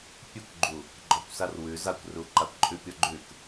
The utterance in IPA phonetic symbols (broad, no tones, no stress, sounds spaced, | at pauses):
pʲ ʉ kʷ ɡ͡ǃ u | ɡ͡ǃ ɔ kʷ s a r w ʉ z a kʷ r u ǃ a kʷ ǃʼ ʉ pʲ ɔ ɡ͡ǃ ʉ k